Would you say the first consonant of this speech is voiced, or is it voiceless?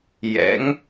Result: voiced